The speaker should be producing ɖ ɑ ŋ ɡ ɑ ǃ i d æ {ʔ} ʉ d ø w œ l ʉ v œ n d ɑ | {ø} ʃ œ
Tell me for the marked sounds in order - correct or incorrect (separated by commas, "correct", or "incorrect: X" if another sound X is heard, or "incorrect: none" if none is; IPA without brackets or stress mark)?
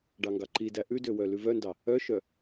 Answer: correct, incorrect: œ